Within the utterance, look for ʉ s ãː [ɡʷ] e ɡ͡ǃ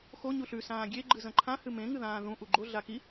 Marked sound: incorrect: ɡʲ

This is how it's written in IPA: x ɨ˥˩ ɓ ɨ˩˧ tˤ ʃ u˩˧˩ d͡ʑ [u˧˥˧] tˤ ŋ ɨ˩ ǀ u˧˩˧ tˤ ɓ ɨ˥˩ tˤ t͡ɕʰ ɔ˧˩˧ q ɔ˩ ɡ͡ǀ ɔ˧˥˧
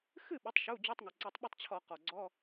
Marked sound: correct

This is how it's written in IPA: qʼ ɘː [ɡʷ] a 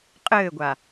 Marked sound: correct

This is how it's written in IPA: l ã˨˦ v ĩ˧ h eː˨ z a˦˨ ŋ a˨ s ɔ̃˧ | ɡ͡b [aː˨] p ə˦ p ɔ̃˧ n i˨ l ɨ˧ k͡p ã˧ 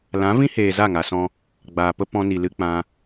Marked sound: correct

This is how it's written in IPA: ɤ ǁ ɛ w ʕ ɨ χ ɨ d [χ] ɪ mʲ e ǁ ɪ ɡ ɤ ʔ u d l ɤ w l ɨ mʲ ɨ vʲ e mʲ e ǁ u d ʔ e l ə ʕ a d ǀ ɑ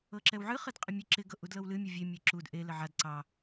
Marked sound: incorrect: qʼ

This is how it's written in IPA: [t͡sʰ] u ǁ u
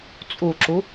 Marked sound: incorrect: t͡sʼ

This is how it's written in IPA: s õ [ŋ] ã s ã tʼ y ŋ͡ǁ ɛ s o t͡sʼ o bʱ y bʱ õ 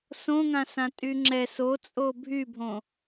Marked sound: correct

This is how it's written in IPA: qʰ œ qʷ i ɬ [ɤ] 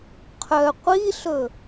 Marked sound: incorrect: ɵ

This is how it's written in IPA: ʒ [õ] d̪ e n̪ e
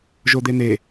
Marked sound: incorrect: o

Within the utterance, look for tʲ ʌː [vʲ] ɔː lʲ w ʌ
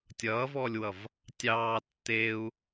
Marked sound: incorrect: v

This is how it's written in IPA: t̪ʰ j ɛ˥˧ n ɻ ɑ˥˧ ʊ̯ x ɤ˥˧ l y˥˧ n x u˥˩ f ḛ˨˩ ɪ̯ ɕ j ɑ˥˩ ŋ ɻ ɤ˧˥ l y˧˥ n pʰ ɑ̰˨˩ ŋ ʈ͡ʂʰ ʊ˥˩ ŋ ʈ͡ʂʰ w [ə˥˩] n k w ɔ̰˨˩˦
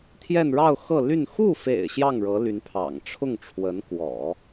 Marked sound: incorrect: ə˧˥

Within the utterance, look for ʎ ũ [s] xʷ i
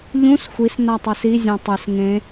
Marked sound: correct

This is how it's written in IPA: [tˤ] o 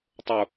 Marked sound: correct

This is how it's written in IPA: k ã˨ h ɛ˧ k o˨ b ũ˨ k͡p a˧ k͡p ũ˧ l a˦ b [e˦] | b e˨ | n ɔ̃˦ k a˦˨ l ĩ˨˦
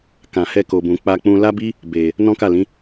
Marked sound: incorrect: i˦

